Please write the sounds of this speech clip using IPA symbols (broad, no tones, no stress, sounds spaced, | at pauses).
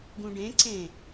ɡ ũ ɖ ẽ ǀ ẽ